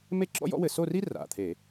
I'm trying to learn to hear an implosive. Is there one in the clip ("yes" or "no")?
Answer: no